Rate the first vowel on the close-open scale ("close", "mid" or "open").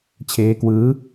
mid